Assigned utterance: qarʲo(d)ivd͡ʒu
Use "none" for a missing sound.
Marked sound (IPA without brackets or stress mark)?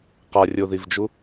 ð